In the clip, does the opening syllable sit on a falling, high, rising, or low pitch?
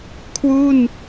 falling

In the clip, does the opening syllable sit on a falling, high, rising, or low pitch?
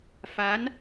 rising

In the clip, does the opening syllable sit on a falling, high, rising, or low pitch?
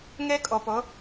high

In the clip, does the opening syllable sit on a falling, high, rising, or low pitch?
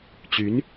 rising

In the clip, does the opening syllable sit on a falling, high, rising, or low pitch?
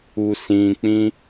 low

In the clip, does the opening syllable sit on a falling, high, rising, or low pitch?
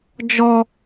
high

